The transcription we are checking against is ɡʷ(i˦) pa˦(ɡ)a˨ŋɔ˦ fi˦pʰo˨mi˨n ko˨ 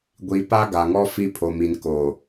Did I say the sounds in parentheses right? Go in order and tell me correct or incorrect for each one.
incorrect: i˨, correct

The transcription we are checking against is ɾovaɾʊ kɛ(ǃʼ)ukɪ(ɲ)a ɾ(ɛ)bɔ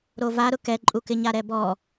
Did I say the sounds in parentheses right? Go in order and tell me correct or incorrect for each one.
correct, correct, correct

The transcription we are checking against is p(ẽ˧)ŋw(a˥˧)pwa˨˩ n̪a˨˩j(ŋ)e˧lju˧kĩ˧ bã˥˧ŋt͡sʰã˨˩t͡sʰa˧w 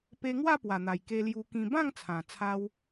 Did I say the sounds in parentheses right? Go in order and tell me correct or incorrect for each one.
incorrect: e˧, correct, incorrect: k

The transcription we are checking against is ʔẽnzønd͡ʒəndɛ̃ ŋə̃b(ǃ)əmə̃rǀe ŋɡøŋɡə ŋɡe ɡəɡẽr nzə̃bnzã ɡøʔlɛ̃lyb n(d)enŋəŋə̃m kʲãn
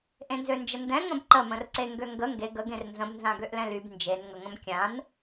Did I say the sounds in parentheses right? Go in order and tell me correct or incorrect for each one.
correct, incorrect: d͡ʒ

